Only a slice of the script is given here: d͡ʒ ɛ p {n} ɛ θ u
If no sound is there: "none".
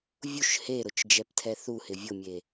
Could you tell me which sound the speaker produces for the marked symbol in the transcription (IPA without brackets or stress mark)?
tʰ